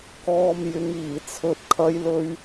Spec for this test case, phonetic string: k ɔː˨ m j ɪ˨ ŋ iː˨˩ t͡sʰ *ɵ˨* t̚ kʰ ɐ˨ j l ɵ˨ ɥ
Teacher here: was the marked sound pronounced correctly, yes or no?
yes